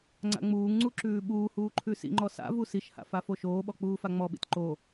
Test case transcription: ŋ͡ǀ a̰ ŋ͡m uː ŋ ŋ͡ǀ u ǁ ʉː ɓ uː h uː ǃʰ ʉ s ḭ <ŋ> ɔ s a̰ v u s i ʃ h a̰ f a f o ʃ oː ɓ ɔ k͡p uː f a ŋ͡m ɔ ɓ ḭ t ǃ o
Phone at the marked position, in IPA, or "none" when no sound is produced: ŋ͡ǃ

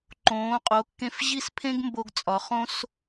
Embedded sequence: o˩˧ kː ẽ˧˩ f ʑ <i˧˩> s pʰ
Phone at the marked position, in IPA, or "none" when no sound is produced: i˥˧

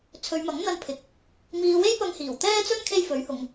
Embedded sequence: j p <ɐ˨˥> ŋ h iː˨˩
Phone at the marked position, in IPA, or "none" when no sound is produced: ɐ˧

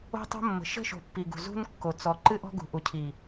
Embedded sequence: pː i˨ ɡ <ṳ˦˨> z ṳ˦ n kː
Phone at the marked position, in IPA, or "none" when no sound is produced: ṳ˨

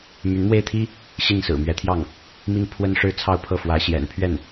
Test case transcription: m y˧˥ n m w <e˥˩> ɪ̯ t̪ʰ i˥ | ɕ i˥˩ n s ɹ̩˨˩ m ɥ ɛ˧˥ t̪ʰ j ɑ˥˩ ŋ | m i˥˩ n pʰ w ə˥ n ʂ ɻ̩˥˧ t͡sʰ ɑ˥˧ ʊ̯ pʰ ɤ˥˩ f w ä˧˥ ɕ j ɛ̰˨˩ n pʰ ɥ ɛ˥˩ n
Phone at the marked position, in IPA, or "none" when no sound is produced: e˥˩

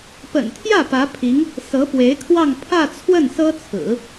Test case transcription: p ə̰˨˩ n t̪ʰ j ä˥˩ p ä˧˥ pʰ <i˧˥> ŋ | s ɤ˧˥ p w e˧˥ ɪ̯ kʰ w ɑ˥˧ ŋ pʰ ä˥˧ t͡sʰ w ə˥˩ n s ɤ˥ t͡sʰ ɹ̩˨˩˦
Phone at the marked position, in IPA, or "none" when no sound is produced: i˧˥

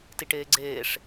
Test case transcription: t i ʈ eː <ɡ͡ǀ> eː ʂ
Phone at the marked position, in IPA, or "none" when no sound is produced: ɡ͡ǀ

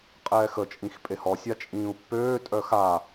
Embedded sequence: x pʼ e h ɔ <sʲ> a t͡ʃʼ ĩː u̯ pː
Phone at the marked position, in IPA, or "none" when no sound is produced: sʲ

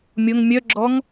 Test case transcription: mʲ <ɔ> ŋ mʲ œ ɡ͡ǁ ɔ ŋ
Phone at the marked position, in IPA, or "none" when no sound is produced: o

